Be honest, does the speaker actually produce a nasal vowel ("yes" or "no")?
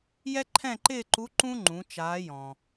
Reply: yes